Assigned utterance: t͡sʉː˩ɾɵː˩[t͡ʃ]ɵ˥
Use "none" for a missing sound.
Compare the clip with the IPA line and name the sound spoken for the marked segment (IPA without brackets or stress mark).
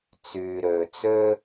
t͡s